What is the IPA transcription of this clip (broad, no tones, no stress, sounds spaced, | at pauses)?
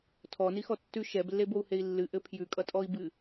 tʰ ɔ n i x ɔ tː ʉ ʃ ɛ b lː e b o u̯ h e i̯ lː ɨ ʔ ɘ pʰ j ʉ kʼ ʌ tʼ ɔ i̯ b ɨ